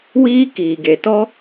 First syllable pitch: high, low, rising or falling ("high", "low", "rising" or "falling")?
high